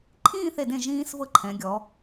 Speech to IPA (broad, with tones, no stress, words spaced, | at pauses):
ǃʰĩː˥˧θe˧˩dẽ˧˩ ʒĩː˧s vɤ˥ǃʰɛ̃˩˧ɡʲɔ˩˧